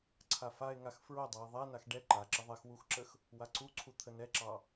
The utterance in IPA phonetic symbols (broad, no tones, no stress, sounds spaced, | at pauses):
ǀʰ a f a e̯ ŋ a x f ɹ o dˤ a e̯ ðˤ ɛ n a x ɖ ɛ ǃ a ǁ ə ðˤ ɛ x w u x ǁ ə x | w a ǀ u ǀʰ u t̪ʰ ə n ɛ ǁ ɑ